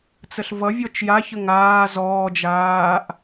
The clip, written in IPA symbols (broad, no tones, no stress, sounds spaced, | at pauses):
t͡s ə ɬ v ʌ vʲ ɔ t͡ʃ j a ç ə ŋ aː z ɔː d͡ʒ aː ʔ